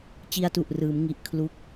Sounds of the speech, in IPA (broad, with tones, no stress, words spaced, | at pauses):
t͡ɕi˧a̯tu˨˩ʔrɯː˩˦mŋi˨˩ʔ kʰlu˦˥k̚